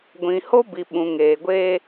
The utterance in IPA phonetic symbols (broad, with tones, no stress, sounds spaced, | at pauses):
ɡʷ ĩ˨ h o˦ b i˨ ɓ ũ˨ ŋ eː˨ ɡʷ eː˦